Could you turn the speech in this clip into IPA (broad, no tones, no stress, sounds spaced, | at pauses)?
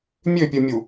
mʲ ø pʲ ɯ mʲ u